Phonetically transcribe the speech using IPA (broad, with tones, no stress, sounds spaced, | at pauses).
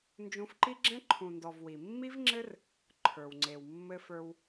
n d͡ʒ ũ˧ f ǃ i˦ ɡ͡ǁ ɛ̃˦ ǃʰ ũ˨ n d ɔ˨ v w i˨ mː i˦ v ŋ͡ǁ ɘ˦ r | ǃʰ ə˞˨ w ŋ͡ǀ e˨ w mː ɘ˧ f ə˞˧ w